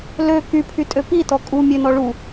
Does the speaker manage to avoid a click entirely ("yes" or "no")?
yes